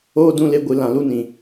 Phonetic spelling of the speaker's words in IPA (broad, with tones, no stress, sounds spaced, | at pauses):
oː˦ d ũ˧ l e˧ ɡʷ ɨ˨ l ã˨ l u˧ n ĩ˨